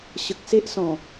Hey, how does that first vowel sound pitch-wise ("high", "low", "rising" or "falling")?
low